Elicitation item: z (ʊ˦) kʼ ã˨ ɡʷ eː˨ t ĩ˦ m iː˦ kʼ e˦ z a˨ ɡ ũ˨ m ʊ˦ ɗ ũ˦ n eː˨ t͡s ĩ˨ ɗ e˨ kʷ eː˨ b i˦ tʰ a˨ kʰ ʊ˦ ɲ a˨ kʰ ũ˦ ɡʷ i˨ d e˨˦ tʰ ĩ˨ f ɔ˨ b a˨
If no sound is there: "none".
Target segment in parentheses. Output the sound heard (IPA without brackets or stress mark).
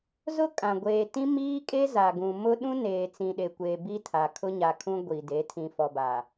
ʊ˦